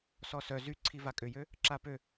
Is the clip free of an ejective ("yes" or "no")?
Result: no